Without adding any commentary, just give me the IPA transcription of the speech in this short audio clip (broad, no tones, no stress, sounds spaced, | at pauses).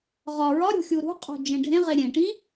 ʁ ɒ ɹ ɒ ɾʲ o̤ xʲ u ɾ ṳ qʼ o̤ d͡ʒ ẽ ɖʱ ẽ ʁ e ɾʲ ẽ ʈ ĩ